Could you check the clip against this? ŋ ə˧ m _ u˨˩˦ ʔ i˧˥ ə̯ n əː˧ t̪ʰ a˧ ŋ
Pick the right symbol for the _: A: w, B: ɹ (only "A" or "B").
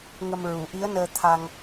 B